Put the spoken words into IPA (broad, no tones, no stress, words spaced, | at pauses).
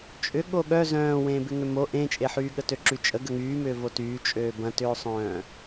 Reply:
t͡ʃʼʏ ɠoɠœ zœ̃ːwẽːbɪ ŋʏmo ʔẽːt͡ʃʼeħyː ɠətøǁyt͡ʃʼə ɡəŋyːmʏːvo tyːt͡ʃʼøː bɐ̃tʏːsˤœ̃ː